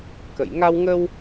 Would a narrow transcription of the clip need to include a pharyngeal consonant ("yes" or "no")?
no